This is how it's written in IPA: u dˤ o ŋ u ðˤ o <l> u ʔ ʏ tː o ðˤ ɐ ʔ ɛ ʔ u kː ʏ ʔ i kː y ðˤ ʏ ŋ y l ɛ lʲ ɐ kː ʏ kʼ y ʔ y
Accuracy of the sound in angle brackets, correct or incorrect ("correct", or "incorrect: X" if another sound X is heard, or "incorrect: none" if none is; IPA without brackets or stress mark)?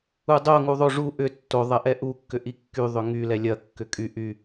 incorrect: ʐ